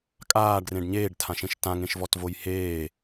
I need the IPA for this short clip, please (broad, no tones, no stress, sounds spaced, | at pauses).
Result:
kʼ aː ɖ r ẽ ɖ ɲ eː ɖ tʰ ã ʃ ẽ ʃ t ã ŋ ẽ ʃ v ɔ t v o j h eː